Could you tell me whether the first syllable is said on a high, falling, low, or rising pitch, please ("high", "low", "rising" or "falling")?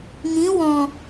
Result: rising